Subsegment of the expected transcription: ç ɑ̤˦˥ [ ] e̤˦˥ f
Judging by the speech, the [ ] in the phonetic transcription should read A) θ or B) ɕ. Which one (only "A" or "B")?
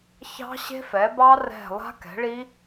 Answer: B